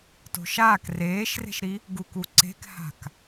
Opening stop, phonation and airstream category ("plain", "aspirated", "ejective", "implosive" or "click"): plain